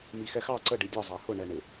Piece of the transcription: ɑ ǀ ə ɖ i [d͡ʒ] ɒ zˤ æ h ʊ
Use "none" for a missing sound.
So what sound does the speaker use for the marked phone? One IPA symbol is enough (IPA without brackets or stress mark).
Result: dʲ